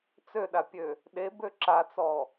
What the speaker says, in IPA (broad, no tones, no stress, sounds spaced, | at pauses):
t͡s ø ɗ a pʲ ø | ɗ e b ø ǁ a t͡s ɔ